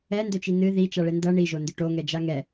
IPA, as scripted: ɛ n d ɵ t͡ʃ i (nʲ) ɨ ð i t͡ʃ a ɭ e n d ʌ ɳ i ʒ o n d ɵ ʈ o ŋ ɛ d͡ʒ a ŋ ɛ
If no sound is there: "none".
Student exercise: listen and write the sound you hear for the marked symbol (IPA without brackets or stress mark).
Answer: n